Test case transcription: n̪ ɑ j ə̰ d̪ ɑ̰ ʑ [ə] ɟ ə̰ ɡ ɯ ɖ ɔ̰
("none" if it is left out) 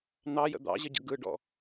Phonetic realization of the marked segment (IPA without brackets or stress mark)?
ə